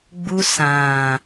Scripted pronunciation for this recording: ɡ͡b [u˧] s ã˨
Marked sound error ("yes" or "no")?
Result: no